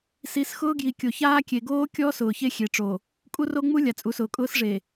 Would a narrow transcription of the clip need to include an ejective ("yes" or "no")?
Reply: yes